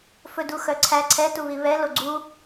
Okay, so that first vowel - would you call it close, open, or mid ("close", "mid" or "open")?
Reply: mid